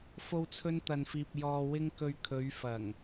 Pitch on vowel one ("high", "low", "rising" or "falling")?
high